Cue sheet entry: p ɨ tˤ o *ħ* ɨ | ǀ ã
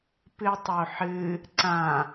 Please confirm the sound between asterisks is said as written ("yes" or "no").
yes